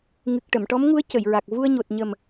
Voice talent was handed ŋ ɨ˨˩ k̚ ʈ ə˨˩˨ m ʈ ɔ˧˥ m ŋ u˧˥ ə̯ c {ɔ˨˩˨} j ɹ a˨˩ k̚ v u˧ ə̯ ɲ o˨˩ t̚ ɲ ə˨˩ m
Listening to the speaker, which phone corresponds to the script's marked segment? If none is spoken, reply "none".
ə˨˩˨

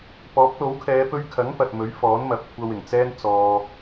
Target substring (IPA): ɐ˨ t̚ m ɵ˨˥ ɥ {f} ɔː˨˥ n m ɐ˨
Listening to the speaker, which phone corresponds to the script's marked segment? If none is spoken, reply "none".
f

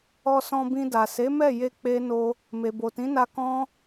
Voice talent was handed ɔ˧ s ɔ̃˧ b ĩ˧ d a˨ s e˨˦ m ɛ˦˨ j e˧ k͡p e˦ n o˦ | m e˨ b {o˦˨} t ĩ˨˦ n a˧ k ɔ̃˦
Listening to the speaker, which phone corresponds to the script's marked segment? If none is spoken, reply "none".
o˨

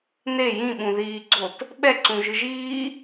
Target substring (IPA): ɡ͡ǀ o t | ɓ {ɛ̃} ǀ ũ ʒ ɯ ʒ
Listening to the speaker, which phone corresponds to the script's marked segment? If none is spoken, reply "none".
ɛ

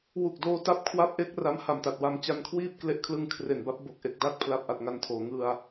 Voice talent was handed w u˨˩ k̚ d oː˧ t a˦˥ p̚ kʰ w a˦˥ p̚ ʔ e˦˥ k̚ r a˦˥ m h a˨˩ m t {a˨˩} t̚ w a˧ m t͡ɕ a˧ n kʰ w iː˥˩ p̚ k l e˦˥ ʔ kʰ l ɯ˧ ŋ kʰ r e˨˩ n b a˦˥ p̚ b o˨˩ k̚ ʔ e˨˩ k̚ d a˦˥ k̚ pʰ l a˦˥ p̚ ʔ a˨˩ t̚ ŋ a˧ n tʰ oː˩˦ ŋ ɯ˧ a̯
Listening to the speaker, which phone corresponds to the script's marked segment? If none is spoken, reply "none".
a˨˩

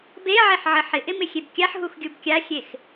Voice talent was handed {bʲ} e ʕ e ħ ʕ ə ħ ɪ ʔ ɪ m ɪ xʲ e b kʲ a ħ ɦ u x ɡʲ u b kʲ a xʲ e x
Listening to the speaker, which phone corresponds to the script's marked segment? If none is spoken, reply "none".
b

